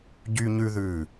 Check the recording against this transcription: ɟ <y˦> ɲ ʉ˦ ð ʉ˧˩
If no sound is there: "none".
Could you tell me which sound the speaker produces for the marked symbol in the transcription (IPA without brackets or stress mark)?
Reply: y˦